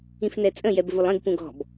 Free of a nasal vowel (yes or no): no